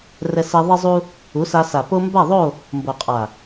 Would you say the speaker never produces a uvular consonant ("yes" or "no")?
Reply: no